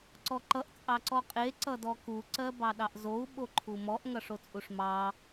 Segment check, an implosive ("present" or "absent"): present